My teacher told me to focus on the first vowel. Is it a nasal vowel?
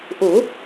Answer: no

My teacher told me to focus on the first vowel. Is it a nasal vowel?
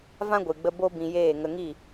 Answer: yes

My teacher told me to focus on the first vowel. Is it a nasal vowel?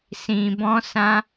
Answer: yes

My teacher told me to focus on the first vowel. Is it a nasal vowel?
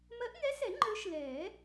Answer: no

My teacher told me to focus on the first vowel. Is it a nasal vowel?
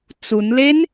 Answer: no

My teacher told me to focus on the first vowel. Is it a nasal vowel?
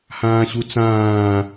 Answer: yes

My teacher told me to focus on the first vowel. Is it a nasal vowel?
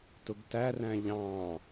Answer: no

